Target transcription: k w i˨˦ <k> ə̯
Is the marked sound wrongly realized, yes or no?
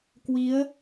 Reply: yes